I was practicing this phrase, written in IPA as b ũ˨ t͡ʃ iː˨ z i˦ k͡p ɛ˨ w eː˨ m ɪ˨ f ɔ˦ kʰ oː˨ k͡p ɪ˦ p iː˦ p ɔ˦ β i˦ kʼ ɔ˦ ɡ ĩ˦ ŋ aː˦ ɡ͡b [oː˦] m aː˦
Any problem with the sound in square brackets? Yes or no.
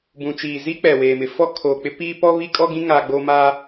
no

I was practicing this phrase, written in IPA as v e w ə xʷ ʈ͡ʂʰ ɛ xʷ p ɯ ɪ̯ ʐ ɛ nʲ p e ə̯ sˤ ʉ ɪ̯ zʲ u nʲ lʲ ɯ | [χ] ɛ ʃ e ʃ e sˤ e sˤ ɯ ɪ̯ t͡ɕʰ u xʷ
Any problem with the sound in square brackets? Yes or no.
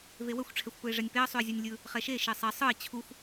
no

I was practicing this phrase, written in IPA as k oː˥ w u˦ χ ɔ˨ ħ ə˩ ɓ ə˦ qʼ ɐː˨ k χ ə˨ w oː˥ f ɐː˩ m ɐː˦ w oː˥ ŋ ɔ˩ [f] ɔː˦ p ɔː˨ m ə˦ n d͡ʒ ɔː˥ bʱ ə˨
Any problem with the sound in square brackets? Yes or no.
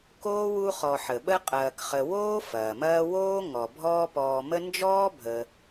yes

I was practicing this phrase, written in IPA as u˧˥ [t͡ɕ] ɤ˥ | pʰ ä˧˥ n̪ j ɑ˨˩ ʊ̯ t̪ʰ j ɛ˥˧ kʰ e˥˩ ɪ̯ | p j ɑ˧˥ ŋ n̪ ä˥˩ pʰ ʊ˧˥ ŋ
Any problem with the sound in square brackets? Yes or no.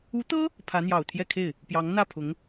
yes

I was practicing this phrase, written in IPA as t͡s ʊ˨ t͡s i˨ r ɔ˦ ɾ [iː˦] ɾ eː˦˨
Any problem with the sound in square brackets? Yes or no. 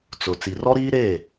no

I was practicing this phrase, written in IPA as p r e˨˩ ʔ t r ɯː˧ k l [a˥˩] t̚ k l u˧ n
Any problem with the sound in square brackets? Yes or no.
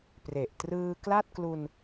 no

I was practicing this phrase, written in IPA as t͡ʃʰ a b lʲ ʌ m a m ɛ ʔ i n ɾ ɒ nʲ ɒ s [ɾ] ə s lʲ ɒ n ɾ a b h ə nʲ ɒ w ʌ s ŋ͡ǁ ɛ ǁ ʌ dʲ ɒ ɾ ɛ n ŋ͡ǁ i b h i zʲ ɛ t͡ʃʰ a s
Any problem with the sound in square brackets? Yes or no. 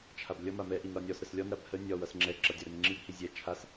no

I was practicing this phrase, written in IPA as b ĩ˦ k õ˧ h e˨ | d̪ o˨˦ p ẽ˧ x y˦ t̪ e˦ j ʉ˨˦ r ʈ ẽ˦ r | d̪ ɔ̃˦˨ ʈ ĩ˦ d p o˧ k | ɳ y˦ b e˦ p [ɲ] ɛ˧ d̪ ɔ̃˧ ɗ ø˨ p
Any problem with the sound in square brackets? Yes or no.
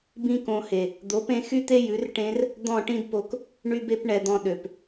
yes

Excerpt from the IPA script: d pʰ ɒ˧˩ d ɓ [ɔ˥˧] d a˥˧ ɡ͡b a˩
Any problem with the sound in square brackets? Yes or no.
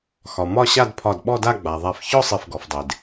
no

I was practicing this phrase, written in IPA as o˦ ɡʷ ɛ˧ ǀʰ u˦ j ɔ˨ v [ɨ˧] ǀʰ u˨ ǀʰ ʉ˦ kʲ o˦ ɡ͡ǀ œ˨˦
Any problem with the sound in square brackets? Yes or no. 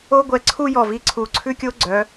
yes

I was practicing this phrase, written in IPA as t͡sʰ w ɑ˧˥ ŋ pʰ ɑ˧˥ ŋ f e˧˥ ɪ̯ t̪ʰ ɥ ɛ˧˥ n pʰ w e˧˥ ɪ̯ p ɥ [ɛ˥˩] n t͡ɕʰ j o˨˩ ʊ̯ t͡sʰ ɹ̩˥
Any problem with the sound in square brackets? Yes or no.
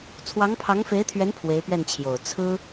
no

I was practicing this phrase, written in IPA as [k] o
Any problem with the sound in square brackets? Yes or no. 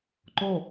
yes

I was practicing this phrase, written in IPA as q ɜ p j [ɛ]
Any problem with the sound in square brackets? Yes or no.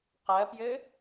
yes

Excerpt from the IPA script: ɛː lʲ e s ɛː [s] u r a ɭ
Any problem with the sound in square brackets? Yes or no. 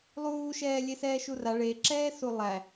yes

